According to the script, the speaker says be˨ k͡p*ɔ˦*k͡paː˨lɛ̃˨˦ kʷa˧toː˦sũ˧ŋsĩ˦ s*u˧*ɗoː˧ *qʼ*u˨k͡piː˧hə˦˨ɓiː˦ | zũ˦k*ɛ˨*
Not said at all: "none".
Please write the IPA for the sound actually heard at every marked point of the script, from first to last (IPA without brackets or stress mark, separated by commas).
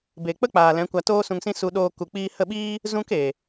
ə˦, u˧, k, e˨